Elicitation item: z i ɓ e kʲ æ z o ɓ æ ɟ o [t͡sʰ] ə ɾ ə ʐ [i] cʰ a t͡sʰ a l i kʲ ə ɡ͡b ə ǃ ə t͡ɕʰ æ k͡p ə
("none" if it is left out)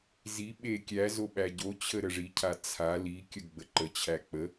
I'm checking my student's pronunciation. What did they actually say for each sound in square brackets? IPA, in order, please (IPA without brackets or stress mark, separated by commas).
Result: t͡ɕʰ, i